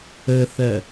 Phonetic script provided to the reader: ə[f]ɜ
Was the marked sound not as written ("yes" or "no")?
yes